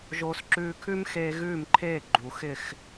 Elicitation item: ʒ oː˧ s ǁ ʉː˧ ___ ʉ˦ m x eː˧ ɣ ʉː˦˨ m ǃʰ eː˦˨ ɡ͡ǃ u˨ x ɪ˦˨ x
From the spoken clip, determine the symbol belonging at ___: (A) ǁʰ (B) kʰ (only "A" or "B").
B